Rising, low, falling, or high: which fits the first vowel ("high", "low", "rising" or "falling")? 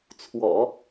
low